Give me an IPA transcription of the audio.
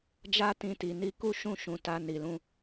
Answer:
d͡ʒa˦tĩ˧ti˨ ni˧ku˦ ʃũ˦˨ʃũ˨ ta˧ni˨lũ˧

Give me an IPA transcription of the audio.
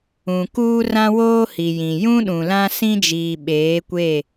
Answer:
ũ˨ kuː˦rã˦woː˦hi˨ jĩ˨jũ˦ ɗũ˨lã˦sĩ˦d͡ʒiː˨ ɓeː˨˦kʷe˦˨

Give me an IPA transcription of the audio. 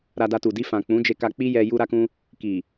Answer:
ɾa˧da˧tu˨ di˧ fã˨k͡pũ˨˦d͡ʒe˧ka˧ k͡pi˦jɛ˧ ju˦ɾa˦kũ˦ | ki˨

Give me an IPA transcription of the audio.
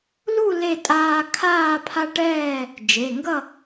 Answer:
lu˥˨ le˥˨tʼaː˦ kʰaː˥˨pʰa˦ʈɛː˥˨ | d͡ʒe˩˧˩ŋɡʌ˥˨

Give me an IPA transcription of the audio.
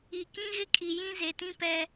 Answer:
i˨ kĩ˦ɣɪ˦kʼi˨jĩ˦ ze˨tĩ˦pɛ˦

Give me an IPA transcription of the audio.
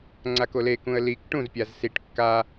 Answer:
ŋ͡ǀakole kũə̯lik ʈũzpʲaz siʈ kːa

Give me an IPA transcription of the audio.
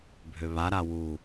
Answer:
bʱøβaɾa wu

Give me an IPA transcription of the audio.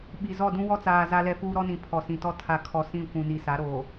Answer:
ɓi˨ zɔ˦˨dũ˦wɔ˦t͡saː˨ za˦lɛ˦fuː˦ ɾɔ˦nĩ˨ pʰɔ˨sĩ˨tɔ˦ tʰa˨kʰɔ˨ sĩ˦˨kʷũ˨ni˨ sa˨˦ɾoː˨

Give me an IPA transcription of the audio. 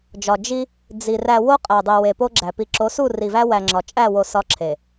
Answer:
d͡ʒɒ˨ d͡ʒi˦ | d͡zi˨ ræ˨ wo˦qʼæ˨dˤi˨ we˨po˦ɡ͡ǁæ˨ pi˨ǁo˨˦su˦˨ ri˨væ˦wæ˨ŋ͡ǁɒ˨ t͡ʃʼæ˦˨wo˨ sɒ˦ǁʰe˨

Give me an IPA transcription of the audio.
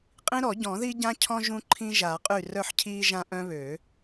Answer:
qʼĩ˦ɾɔ˨˩˦ɟɔ̃˨˩˦ði˦ ɟã˦cʰɔ̃˦ ʒũ˦ǃʰĩ˦ ʒa˨˩˦qʼy˥˩ rœ˥˩ħcʰiː˦ʒã˦ ʔœ̃˦βø˨˩˦

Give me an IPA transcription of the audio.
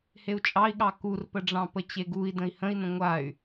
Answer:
heu̯t͡ʃʼɑi̯ɠɑ kurpəɖ͡ʐɑ̃ pət͡ɕeɡui̯ də̃i̯hə̃i̯nə̃ ŋʷay̯

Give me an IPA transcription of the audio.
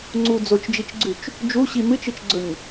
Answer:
ŋ͡ǀu d͡zot͡ʃd͡ʒit͡ʃɡ͡ǀʉt͡ʃ | d͡ʒuɕi mɨt͡ʃɨt͡ʃɡ͡ǀɵɲ

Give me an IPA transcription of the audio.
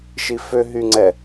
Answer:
ʃifø ɦyŋ͡ǀɛ

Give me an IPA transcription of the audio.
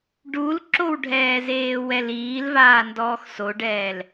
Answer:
ɖulǁowɖʱɛː zeːwɛliːlvaː ndɔːxsoɖɛːl

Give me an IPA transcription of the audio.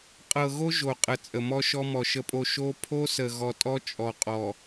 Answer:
qʼɤ˨ɣo˦ ʒo˨qʼə˨ t͡sʼə˨mɔ˦ʃɔ˦mɔ˨ ʃə˨pʼo˨ ʃo˦ pʰo˦sə˨ ɣɔ˨tʼɔ˦ t͡ʃʼɔ˨qʼɔ˨

